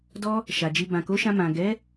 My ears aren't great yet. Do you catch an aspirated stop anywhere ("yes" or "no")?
no